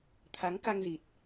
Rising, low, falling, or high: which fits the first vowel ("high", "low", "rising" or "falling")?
rising